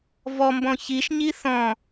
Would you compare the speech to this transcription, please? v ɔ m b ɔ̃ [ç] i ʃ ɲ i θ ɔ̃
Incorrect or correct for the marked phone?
correct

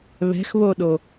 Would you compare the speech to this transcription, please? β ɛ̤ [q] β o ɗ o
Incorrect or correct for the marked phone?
incorrect: x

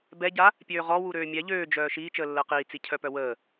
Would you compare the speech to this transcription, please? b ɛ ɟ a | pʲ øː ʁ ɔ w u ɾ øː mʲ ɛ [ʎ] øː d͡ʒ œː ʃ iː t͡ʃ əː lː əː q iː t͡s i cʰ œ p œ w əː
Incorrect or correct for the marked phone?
correct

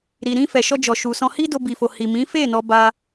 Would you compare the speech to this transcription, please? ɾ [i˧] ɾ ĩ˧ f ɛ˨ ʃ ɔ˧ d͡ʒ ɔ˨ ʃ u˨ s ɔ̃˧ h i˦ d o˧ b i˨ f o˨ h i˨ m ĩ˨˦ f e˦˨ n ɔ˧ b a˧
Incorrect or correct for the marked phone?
incorrect: i˨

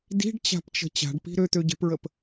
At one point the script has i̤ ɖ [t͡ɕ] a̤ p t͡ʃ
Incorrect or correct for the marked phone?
correct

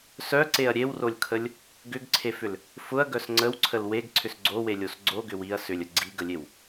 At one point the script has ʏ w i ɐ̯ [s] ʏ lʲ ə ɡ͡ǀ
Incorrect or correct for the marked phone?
correct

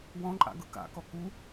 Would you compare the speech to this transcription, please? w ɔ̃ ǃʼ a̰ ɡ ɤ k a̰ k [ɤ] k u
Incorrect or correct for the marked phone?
incorrect: ɔ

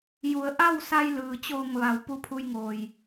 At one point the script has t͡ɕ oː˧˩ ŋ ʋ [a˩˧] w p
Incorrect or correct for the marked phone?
correct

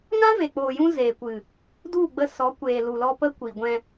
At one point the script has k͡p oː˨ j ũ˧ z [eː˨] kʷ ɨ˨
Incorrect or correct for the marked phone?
correct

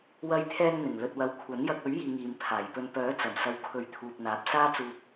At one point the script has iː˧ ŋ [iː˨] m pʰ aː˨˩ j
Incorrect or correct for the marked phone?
correct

